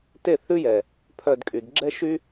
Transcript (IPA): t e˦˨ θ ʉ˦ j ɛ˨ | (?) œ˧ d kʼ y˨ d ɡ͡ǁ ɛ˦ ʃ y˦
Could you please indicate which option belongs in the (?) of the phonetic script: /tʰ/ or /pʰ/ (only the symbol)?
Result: pʰ